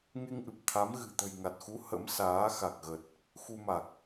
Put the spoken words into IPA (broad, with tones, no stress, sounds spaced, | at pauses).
ŋ e˧ ŋ ʔ ɨ˨˩ p̚ t̪ʰ a˨˦ m ɣ ɨ̤˨˩ t̪ ə̤˨˩ j ŋ a˨˩ t̚ x u˨˦ h ə̰˧˥ m s aː˨˦ x a˨˩ k̚ ɣ ə˨˩ t̚ | x u˧ m a˨˩ k̚